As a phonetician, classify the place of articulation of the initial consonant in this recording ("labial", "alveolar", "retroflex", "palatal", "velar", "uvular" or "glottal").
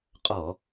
uvular